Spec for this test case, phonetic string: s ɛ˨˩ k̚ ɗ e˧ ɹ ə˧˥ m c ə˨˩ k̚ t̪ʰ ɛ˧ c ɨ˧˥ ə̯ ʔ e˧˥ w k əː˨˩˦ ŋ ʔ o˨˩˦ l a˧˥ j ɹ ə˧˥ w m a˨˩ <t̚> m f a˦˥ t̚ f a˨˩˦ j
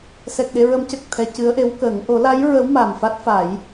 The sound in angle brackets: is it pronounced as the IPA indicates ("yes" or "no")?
no